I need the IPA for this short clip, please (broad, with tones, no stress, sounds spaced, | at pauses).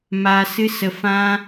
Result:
m a˨ s ɨ˧ s ə˨ f ã˧